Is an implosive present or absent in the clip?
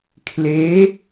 absent